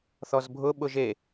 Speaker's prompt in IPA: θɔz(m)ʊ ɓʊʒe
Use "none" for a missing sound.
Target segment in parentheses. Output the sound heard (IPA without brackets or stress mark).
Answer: bʱ